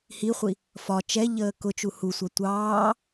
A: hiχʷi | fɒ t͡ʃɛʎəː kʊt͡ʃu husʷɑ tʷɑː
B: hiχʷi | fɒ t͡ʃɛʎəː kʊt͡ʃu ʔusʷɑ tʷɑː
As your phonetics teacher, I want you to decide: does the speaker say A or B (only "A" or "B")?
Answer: A